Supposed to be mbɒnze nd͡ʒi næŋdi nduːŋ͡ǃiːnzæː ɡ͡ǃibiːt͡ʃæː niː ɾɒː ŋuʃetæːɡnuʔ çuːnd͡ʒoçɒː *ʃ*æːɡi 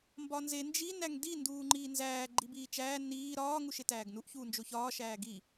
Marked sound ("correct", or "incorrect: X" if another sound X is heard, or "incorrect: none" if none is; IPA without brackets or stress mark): correct